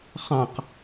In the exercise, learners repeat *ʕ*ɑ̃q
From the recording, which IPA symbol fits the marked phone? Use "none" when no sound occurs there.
χ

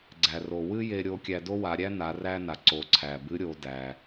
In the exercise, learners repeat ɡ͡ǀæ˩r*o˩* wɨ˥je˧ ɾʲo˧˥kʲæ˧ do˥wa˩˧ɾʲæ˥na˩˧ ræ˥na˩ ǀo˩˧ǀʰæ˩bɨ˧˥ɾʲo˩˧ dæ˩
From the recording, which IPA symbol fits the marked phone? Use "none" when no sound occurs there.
o˩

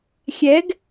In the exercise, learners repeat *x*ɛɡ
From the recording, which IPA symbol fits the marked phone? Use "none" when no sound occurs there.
xʲ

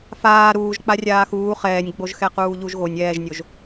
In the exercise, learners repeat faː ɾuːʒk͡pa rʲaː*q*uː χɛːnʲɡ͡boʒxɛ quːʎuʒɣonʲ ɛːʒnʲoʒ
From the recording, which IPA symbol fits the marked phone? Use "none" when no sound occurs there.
x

